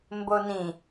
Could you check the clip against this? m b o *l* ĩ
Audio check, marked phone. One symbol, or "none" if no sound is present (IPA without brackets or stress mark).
n